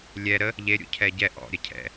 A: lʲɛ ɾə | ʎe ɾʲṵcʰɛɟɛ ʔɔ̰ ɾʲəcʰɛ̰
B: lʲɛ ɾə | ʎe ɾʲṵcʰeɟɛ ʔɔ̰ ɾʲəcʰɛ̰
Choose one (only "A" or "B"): A